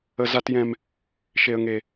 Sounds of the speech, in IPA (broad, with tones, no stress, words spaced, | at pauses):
ə˦ za˦tjɛ̃˦m | ʃe˦ə̯ŋe˦